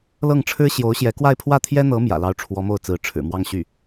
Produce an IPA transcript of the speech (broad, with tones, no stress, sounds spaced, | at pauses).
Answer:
l ɤ˥˩ ŋ ʈ͡ʂʰ ɻ̩˥ ɕ j o˧˥ ʊ̯ ɕ j ɛ˧˥ k w a˥˧ ɪ̯ pʰ w ä˥˩ t̪ʰ j ɛ˥ n̪ ɤ˧˥ m j ä̰˨˩ l ɑ˥˩ ʊ̯ ʈ͡ʂʰ w ɔ˧˥ m o˥˩ ʊ̯ t͡s ɹ̩˧˥ ʈ͡ʂʰ ɻ̩˨˩ m w ɑ˥˧ ŋ ɕ y˥˩